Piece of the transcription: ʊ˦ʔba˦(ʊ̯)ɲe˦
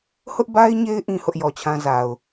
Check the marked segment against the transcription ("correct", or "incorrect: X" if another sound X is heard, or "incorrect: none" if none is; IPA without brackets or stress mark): incorrect: ɪ̯